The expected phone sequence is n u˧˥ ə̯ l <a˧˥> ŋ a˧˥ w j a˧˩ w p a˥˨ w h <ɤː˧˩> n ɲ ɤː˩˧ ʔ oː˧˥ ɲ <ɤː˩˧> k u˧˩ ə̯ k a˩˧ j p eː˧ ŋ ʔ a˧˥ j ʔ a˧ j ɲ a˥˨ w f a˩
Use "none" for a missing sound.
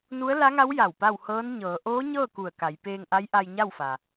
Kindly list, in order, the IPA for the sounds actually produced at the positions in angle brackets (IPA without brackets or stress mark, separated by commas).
a˧˥, ɤː˧˥, ɤː˥˨